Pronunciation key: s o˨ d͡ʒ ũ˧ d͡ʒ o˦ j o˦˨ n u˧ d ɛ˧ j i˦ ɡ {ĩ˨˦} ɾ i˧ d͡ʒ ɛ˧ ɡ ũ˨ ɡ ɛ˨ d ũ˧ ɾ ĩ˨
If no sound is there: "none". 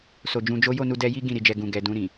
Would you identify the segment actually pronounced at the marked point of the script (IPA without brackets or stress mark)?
ĩ˦˨